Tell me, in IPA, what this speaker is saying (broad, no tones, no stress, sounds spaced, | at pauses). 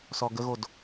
s ɔ ɡ ə ɣ o d